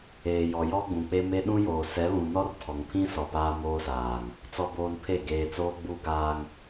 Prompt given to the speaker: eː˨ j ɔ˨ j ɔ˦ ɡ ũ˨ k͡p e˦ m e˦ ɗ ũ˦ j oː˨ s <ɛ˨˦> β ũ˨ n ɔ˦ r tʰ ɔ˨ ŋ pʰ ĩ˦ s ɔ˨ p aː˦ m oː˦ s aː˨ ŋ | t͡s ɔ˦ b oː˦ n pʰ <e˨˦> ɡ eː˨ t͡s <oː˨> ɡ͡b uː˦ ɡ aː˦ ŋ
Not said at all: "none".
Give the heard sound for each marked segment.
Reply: ɛ˨˦, e˦˨, oː˦

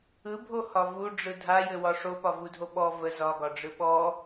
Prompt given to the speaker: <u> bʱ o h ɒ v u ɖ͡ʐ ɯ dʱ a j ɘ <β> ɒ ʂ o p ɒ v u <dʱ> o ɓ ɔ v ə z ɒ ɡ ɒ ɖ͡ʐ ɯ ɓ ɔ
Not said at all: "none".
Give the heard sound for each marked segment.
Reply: ɯ, w, dʱ

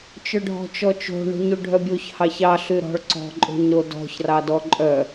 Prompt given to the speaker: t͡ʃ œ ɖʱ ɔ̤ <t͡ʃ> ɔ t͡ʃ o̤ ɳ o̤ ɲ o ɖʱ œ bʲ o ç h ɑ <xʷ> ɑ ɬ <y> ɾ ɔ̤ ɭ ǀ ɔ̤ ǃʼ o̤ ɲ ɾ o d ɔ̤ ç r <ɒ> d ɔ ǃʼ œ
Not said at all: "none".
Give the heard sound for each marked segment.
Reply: t͡ʃ, ç, y, ɑ

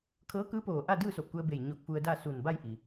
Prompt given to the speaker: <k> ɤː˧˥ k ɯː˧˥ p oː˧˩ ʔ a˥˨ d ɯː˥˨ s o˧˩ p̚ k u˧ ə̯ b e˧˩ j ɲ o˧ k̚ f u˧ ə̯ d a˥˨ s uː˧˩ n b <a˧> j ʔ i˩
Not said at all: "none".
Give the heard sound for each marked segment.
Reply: kʰ, a˥˨

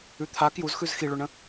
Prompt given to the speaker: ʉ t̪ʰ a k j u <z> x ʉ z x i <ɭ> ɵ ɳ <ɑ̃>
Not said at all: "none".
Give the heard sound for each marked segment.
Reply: z, ɭ, ə̃

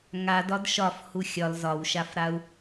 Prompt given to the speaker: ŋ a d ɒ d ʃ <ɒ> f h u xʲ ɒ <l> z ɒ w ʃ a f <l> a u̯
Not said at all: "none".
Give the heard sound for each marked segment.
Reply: ɒ, l, ɾ

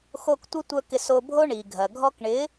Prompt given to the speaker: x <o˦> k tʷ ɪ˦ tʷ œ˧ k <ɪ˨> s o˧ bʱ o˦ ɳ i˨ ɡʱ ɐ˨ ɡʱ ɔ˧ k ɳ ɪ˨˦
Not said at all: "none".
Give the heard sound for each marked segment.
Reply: o˧, ɪ˧

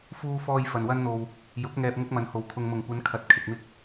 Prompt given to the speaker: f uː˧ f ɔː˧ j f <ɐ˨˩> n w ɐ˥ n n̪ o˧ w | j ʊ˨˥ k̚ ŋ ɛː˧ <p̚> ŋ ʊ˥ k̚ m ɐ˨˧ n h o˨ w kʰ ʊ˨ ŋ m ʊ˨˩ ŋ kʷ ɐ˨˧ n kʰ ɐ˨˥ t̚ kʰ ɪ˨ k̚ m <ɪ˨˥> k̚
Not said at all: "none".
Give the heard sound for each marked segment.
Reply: ɐ˨, p̚, ɪ˥

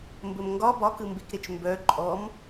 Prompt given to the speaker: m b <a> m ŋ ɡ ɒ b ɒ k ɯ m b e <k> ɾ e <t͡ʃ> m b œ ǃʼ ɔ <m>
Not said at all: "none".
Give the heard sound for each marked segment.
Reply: ə, k, t͡ʃ, m

